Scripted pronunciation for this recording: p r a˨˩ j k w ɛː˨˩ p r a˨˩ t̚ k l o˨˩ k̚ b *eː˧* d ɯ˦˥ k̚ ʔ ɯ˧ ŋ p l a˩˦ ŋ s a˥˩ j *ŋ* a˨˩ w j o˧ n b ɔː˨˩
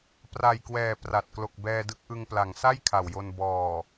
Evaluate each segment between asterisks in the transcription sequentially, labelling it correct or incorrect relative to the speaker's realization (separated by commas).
incorrect, incorrect